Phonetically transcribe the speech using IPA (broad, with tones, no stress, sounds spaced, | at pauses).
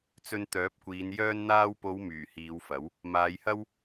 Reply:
t͡s ɵ˧ n t̪ œː˨˥ p̚ kʷ iː˨˧ n j œː˧ n n̪ aː˧ w p o˨˧ w m yː˨˩ h iː˨˧ w f ɐ˨˥ w | m aː˨˧ j h ɐ˥ w